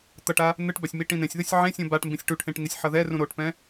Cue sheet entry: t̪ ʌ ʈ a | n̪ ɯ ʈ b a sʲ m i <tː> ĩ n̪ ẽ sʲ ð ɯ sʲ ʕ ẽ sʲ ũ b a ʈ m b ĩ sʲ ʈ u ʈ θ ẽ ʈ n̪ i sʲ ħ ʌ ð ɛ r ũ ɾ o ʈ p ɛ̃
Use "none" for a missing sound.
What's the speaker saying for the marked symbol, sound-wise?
ʈ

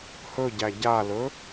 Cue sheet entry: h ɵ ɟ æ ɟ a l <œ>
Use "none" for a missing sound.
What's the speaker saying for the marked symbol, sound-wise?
ɵ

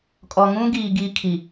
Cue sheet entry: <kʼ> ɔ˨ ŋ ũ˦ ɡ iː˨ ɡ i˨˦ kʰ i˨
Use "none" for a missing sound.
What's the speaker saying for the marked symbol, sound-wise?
kʼ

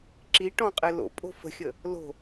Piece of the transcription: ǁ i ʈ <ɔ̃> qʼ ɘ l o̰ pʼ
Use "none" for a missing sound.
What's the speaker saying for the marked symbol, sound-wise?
ɔ̃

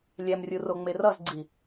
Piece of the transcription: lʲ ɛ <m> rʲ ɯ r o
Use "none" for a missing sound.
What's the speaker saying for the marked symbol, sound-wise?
m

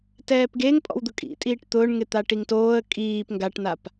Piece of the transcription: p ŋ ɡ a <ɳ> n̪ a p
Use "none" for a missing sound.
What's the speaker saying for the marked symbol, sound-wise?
ʈ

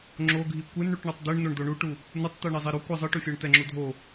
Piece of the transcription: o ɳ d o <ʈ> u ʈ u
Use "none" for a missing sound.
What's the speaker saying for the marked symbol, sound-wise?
ɳ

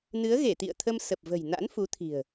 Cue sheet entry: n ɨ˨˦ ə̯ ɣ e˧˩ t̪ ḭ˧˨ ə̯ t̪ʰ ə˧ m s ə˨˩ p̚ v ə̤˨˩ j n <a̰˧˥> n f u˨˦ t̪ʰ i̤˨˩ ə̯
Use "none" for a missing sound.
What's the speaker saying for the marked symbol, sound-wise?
a̰˧˥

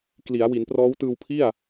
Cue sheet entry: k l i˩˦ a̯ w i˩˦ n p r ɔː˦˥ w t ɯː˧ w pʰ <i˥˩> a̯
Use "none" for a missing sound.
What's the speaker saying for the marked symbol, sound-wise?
i˥˩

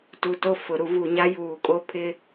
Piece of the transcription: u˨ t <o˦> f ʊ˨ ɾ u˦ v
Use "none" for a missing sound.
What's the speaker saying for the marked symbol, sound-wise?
o˦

